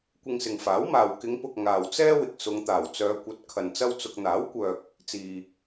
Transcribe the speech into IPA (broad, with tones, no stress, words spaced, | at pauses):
kʷɪ˧ŋsɪ˨ŋfaː˨˥wmaː˨w kɪ˨˧ŋpʊ˨k̚ ŋaː˨wt͡sɛː˥ wɪ˨k̚sʊ˨˧ŋt̪aː˨˩w t͡sœː˨˧kʷɐ˨˥t̚ kʰɐ˨nt͡sɐ˥wt͡sʊ˧k̚ n̪aː˨˥wkʷœː˨k̚ | t͡siː˨